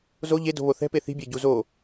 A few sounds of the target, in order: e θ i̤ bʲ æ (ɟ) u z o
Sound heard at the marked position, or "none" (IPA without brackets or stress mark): ɟ